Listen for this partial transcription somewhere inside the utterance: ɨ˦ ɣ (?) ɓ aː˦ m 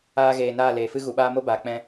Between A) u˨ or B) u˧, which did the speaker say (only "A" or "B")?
A